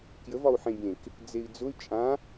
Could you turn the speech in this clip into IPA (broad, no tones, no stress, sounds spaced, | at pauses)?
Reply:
k j ə v ɒ u̯ ħ ẽ bʲ ẽ k | d͡z e i̯ d͡z ʊ y̯ t͡ʃʼ ã